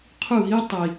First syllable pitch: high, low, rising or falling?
falling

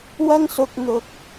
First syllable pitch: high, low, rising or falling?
high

